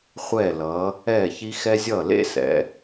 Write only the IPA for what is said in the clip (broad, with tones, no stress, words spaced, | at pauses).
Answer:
χʷɛː˧˩lʌː˩˧ | ɛː˧˩çi˧ xɛ˧ zʲʌː˧˩ lḛ˥˧sɛ̰˩˧